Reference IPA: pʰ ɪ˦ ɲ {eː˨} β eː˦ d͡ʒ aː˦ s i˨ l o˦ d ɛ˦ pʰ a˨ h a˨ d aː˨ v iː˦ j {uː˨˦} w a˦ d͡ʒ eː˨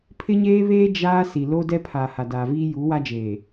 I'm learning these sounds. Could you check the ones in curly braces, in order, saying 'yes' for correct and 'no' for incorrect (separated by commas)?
no, yes